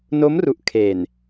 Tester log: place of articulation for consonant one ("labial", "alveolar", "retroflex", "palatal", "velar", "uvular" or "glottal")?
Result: alveolar